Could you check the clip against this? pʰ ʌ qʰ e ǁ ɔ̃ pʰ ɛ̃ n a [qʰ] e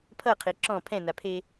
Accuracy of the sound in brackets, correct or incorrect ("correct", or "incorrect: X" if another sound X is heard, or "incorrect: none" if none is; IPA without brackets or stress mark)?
incorrect: pʰ